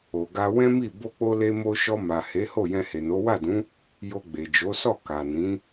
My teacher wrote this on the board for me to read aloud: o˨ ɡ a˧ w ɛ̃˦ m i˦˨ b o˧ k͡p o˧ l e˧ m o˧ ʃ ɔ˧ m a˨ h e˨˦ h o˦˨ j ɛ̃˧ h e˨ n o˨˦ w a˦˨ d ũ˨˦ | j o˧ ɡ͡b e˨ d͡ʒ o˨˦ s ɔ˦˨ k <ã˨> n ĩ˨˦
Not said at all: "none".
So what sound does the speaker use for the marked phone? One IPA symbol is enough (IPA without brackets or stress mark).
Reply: a˨